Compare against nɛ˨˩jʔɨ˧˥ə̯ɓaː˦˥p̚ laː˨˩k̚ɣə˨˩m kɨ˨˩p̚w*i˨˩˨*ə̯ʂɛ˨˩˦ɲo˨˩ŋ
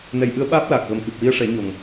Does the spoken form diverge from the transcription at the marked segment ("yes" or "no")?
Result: yes